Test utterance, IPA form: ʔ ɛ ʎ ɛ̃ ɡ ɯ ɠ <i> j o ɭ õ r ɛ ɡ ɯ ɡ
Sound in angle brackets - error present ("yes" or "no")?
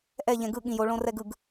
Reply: yes